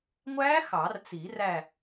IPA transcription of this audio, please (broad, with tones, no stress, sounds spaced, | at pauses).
ŋʷ æ˦˥ x ɑ˨˩˦ r t͡s i˨˩˦ r æ˦˨